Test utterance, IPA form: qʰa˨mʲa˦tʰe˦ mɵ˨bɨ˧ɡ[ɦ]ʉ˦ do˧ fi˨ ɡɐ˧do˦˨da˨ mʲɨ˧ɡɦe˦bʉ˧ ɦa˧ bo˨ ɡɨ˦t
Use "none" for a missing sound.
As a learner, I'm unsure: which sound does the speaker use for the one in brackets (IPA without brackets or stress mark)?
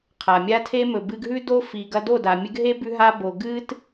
ɦ